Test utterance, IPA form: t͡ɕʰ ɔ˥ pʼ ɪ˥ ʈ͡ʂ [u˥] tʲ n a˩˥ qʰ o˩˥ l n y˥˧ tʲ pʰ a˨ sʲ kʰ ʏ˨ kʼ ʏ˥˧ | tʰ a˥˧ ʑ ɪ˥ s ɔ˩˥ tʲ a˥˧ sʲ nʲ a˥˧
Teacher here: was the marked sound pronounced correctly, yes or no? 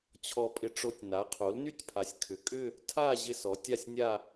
no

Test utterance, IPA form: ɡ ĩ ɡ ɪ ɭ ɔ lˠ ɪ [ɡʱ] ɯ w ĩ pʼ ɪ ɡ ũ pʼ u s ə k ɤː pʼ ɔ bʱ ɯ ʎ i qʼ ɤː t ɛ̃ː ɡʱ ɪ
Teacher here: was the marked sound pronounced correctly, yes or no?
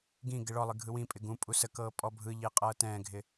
yes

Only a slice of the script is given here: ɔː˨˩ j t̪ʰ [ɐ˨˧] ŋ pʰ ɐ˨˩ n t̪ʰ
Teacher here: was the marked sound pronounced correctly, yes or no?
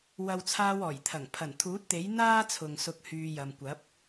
no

